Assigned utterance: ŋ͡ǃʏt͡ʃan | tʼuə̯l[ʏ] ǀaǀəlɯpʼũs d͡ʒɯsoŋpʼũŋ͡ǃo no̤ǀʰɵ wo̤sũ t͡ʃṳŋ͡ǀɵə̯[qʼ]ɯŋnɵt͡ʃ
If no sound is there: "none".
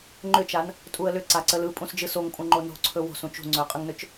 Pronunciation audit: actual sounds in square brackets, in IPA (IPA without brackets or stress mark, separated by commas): ʏ, qʼ